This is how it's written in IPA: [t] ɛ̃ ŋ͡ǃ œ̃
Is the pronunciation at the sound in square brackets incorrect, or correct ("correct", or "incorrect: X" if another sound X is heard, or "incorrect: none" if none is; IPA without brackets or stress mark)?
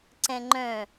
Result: incorrect: ǀ